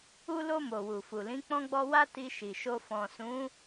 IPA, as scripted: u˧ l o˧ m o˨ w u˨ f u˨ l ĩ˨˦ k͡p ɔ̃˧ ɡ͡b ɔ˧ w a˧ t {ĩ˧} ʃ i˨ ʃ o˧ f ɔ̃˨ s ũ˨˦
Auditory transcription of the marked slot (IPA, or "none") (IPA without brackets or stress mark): i˧